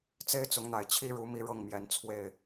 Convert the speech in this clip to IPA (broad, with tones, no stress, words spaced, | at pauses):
t͡se˦ɪ̯t͡sʊ˨˦ŋn̪a˨˩ɪ̯ t͡ɕʰi˦ɻu˨˦ mi˦ɻɤ˥˨ŋmjɛ˨˦n t͡sʰwe˥˨ɪ̯